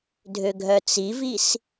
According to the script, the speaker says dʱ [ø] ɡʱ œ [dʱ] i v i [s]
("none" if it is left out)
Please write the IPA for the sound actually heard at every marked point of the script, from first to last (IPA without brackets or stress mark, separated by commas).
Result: ø, t͡s, s